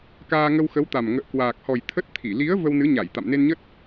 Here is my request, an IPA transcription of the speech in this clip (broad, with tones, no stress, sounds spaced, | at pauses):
k aː˧ ŋ ə˧ w x ə˨˦ w t̪ a˨˩ m ŋ ə̰ː˧˨ k w aː˨˩ k̚ h ɔ˨˩ j t̪ʰ ə˦˥ t̚ t̪ʰ i˧˩ l i˨˦ ə̯ v ə˧ w n ɨ˨˦ ɲ a˧˩ j t̪ a̰˧˨ m n e˧ n ɲ ə˦˥ t̚